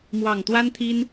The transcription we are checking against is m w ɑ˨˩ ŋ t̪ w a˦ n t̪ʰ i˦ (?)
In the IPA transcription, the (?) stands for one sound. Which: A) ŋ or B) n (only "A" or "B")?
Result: B